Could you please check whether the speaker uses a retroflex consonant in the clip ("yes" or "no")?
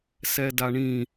yes